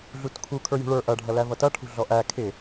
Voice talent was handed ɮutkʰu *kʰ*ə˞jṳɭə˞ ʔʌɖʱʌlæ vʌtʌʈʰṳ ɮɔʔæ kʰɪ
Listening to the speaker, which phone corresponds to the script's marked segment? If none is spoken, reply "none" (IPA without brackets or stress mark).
kʰ